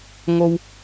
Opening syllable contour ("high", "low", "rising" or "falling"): high